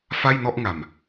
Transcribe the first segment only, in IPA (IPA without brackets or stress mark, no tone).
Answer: f